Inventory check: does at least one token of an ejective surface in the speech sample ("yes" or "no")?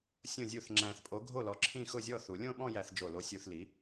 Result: yes